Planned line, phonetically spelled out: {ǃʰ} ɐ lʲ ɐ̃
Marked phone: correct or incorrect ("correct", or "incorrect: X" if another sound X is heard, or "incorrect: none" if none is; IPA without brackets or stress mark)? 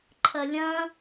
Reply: correct